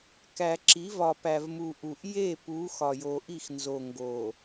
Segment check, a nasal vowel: absent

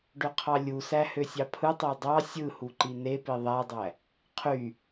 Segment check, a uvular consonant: present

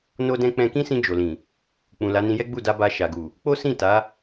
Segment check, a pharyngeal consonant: absent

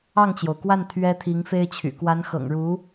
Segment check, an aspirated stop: present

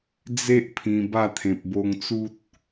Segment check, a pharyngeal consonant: absent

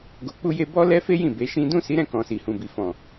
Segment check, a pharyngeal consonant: absent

